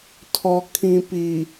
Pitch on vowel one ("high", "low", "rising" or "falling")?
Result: low